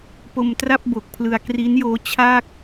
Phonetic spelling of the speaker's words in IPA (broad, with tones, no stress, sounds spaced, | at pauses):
p o˧ m t r a˥˩ p̚ b o˨˩ k̚ pʰ l ɯ˧ a̯ k r i˦˥ n j oː˦˥ t͡ɕʰ a˥˩ k̚